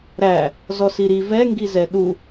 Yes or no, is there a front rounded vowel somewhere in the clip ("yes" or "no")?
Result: no